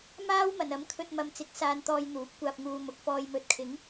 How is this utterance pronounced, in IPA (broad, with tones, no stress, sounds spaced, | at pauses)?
m aː˥ w m ɐ˨˩ n ɐ˨˥ m kʰ ɵ˧ t̚ m ɐ˨ m t͡s ɪ˨˥ k̚ s aː˨ n t̪ ɔː˨ j n̪ uː˨˥ p̚ kʷ aː˧ p̚ ŋ uː˧ m ʊ˨˥ k̚ f ɔː˨ j m ɵ˨˥ t̚ kʰ ɪ˨˥ ŋ